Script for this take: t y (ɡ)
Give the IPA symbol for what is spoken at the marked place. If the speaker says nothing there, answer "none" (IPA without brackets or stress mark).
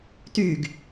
ɡ